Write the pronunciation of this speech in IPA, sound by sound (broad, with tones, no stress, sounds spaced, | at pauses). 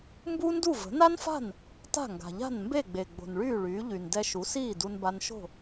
m b u˥ n d u˥˩ v ə̤˩˥ n a˥ n f a̤˥˩ n | t a̤˥˩ ŋ ɡ a̤˩ ʎ a̤˥˩ n m b e˥˩ ɡ͡b e˩ ɡ͡b o̤˩ n ɭ yː˥˩ ɭ yː˩˥ ʎ y˩ n d ɛ˧ ʃ u˩˥ s iː˥˩ d u˧ n b a˧ n ʃ o̤˥˩